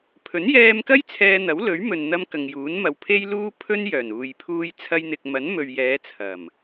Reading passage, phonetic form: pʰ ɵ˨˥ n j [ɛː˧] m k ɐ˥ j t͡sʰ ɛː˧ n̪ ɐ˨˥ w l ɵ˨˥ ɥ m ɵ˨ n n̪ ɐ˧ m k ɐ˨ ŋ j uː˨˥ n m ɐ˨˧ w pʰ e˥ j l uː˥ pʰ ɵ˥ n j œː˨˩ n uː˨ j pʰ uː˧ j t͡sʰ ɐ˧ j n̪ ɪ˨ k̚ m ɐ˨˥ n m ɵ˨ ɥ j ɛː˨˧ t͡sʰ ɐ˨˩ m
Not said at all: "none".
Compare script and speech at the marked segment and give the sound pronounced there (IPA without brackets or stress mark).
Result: ɛː˧